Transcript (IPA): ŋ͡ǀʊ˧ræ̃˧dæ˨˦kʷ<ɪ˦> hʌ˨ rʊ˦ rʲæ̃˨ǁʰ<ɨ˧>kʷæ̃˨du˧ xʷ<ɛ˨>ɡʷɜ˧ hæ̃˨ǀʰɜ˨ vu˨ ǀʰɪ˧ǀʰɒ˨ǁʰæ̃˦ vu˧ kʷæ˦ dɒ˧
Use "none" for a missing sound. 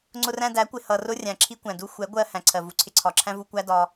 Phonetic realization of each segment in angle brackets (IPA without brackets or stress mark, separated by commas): ɪ˨, i˧, ɛ˨˦